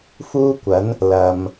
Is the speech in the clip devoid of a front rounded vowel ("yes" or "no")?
yes